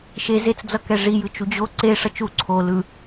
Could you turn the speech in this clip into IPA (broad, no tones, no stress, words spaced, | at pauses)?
ʃe zet͡sd͡zʌ kɛʐi jɯt͡ʃud͡ʑo ǀe ʂʌt͡ʃu ǀʰo lɯ